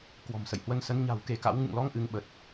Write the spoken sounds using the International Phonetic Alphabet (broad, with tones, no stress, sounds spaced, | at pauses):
k w ɔ̤˨˩ m s ə̰˧˨ j h w ə˧ n s ə˨˦ n ɲ a̤˨˩ w k e˧ k a̰˧˥ w ŋ ɨ̰˧˨ ŋ l ɔ˨˦ ŋ ʔ ɨ˨˦ ŋ ɓ ə˨˩ t̚